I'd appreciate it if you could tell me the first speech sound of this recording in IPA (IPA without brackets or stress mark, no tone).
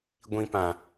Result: ɡʷ